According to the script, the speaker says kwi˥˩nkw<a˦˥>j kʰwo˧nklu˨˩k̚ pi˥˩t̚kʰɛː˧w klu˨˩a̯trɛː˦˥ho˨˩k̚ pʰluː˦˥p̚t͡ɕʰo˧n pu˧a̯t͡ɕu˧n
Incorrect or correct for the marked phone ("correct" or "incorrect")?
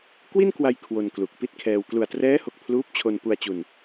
incorrect